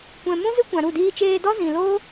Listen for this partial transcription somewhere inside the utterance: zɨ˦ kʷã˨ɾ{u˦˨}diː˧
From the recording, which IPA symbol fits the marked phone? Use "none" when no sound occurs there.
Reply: u˦˨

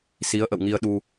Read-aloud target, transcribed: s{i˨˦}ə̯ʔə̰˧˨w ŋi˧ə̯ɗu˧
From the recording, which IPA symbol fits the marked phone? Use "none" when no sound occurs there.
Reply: i˨˦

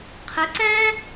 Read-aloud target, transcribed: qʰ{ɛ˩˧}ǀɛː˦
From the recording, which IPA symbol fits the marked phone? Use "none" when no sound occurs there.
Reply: ɛ˩˧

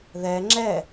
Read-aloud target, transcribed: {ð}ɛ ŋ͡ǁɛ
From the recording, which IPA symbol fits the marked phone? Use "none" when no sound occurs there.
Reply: ð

